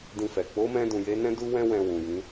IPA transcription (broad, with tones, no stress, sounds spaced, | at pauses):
d ĩ˧ f ɛ˨ k͡p o˨˦ m ɛ̃˧ d ũ˨ j e˨˦ n ɛ̃˦ d u˦ w ɛ̃˦ w ɛ̃˧ w ũ˨ j ĩ˨˦